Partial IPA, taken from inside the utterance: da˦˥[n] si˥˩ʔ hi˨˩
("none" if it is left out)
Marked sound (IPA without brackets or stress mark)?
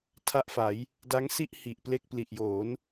ŋ